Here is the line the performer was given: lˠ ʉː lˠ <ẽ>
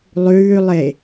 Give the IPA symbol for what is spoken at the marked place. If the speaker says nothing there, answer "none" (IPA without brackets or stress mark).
e